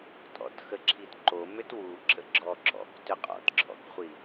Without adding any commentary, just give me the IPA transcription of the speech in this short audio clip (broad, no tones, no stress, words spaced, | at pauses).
tʼɔ̰txəǁʰitǃo mʏtwu ǁə̰ɡ͡ǁɔǁɔ̰k tʏqʼɔ̰tǁʰɔ̰kχʷi